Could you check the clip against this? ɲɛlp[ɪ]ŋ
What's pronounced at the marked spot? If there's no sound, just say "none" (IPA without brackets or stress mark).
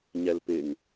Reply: ɪ